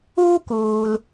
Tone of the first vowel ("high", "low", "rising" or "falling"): high